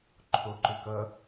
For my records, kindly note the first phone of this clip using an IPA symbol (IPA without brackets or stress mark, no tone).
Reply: ǃʰ